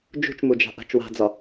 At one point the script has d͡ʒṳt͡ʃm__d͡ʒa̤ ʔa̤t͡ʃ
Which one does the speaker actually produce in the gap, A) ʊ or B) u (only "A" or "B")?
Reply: B